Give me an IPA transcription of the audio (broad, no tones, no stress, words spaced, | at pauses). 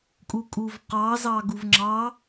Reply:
kʼukʼuvqɑzɑ ɡuvŋ͡ǁɑ